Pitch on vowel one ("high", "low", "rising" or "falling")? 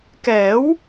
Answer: rising